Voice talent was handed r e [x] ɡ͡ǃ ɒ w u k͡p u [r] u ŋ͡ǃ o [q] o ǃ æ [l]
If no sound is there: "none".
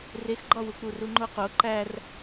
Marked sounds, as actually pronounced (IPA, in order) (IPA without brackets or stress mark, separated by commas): x, r, q, r